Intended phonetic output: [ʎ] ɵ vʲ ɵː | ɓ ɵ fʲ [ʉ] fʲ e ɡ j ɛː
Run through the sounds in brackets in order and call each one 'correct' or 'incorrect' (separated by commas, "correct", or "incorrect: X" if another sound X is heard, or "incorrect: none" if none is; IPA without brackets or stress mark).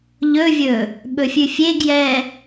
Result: correct, correct